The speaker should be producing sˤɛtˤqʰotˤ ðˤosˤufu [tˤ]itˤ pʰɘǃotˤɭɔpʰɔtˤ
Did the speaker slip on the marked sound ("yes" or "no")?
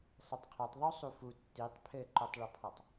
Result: yes